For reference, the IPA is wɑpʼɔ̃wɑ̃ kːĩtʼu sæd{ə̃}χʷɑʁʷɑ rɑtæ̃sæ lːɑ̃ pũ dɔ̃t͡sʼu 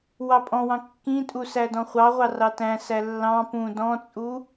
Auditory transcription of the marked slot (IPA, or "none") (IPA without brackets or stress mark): ɔ̃